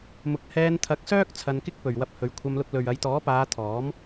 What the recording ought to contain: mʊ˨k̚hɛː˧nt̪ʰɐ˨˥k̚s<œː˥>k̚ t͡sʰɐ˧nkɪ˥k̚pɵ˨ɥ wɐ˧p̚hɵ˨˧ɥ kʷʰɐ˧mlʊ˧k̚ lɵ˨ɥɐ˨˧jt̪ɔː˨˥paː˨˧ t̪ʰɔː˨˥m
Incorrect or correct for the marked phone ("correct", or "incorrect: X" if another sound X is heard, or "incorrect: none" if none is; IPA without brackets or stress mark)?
correct